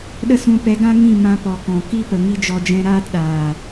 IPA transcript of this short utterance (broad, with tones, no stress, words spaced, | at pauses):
ɗə˧sũ˨pɛ˨˦ɡã˦ ŋĩ˦˨mã˧ pɔ˨kɔ̃˨ ki˦ pə˨ŋi˦d͡ʒɔ˧d͡ʒɛ̃˦ ɾaː˦tɗaː˨